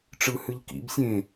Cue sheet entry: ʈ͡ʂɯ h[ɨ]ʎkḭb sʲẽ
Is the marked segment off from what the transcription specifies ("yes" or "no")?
no